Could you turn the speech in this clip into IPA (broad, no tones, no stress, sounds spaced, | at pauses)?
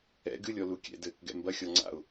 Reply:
ɛ̰ ɡ ɨ lʲ ɔ l u kʲ ɛ̰ d ɘː k ɡ ɛ̰ m b ɐ xʲ ɔ ŋ͡ǀ a̰ ʊ̯